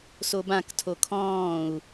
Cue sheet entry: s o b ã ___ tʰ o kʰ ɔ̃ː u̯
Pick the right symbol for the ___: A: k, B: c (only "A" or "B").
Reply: A